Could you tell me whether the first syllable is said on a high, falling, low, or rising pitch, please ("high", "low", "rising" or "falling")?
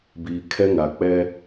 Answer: low